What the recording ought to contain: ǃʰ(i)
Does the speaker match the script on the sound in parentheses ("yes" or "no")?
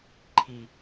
yes